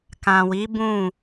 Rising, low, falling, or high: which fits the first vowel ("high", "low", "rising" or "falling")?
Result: low